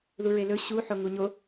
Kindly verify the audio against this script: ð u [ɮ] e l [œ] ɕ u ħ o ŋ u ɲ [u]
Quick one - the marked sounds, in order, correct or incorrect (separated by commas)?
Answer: incorrect, incorrect, incorrect